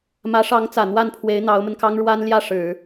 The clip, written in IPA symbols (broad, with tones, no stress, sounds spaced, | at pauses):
m ä˧˥ ʂ ɑ˧˥ ŋ t͡s ä˨˩ n̪ w a˥˩ n pʰ w e˧˥ ɪ̯ n̪ ɑ˧˥ ʊ̯ m ə˧ n k ɑ˥ ŋ ɻ w a˥ n l j ä˥˩ ʂ ɻ̩˨˩˦